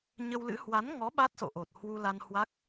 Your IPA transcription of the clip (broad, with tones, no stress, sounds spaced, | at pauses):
ɲ ə˧ w l ɨ̰˧˥ h w a˨˦ n ŋ ɔ˨˦ ɓ a˦˥ t̚ s o̰˧˨ ʔ o˨˩ t̚ h w u˧ l a˧ n h w a˦˥ k̚